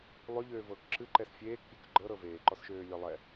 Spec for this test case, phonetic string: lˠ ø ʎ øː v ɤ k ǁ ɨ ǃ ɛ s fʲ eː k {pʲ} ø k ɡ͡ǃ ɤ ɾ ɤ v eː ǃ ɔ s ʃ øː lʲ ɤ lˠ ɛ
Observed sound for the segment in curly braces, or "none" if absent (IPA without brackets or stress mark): pʲ